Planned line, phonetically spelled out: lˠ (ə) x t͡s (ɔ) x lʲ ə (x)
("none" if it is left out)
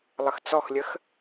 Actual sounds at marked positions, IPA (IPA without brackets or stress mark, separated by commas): ə, ɔ, x